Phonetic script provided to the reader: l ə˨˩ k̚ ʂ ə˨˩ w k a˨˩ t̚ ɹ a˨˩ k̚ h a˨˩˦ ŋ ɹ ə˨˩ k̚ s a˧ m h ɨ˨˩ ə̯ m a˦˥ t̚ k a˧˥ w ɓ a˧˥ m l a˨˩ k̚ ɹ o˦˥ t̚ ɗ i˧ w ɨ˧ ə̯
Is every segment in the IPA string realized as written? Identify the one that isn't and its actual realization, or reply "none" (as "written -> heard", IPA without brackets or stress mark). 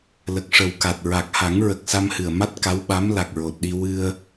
o˦˥ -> o˨˩